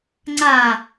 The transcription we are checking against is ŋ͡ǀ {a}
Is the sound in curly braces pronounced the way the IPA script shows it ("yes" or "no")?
yes